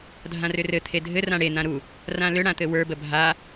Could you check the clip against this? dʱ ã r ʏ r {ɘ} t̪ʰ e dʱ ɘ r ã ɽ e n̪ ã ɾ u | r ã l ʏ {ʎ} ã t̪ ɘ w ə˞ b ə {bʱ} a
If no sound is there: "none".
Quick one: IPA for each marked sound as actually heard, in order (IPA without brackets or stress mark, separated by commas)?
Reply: ɘ, ɽ, bʱ